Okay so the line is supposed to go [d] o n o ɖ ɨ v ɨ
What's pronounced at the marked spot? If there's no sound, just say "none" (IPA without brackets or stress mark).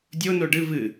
dʲ